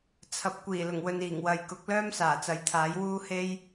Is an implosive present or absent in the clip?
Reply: absent